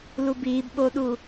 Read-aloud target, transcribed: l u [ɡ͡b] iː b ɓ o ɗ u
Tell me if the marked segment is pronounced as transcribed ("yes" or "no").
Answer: no